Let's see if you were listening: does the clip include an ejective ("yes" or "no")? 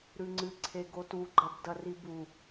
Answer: no